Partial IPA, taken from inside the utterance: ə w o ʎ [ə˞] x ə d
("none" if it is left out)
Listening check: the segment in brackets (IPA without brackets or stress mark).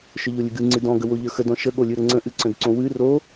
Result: ə˞